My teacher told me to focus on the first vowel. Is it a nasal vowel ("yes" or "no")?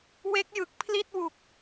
no